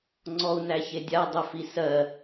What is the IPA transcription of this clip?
ŋ͡ǀɔu̯næçedʲa dˤɘfisɜ

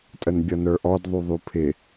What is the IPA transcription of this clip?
tʼənbʲʌnə˞ʔɔd ðˤuðˤupʰɪ

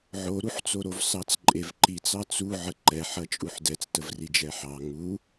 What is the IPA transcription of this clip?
ʕoɾuħt͡so ɾovsɑt͡sǃʼevǃit͡s ɑt͡suʕə ǃɛħɐ t͡ʃʼuħdɛt͡stəvri d͡ʒɛħɑ ŋu

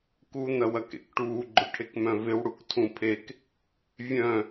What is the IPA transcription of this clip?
ku n̪ɐwɐkḛkʈuː ɡ͡ǃʊʈʰekmœ̃vɪw ɽuktʰũpʰek | vʲœ̃

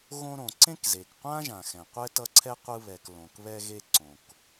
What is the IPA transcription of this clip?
ɣõ˦ɾõ˩ ǀẽ˥kze˩kqʷã˥ʒã˩ xɛ̃˩qʷɛ˦ tʌ˦ǀʰɛ˥qʷɯ˦βɛ˨k lõ˩kβɛ˦ɣe˦ ǀõ˩k

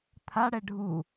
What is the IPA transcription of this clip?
t̪ʰaɽɛ ɖʱu

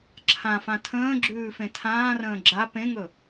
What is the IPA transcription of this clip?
ǁʰãfã tʰə̃ːɡ͡ǁʉːfẽ tʰãːrə̃ː ɡ͡ǁa pẽŋɵ

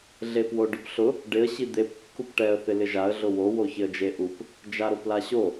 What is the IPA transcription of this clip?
ɮepwoɖʊpɬʊ | ɖɪə̯ ɕid̪ep kːupʈɛə̯ θɪlɪʒaə̯ ɮʊwo woçɪə̯d͡ʒeʔup | d͡ʒaɾoplaɕo

